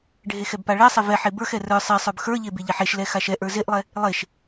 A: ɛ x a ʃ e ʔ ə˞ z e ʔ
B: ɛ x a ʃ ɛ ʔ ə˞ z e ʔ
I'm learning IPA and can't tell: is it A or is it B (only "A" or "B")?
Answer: B